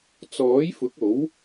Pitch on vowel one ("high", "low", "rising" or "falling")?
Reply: rising